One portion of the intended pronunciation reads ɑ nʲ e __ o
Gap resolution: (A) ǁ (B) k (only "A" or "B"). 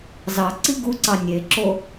A